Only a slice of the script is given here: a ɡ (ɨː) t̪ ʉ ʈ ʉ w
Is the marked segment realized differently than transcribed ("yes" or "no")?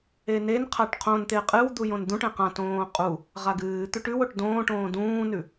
no